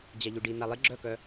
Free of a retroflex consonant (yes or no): no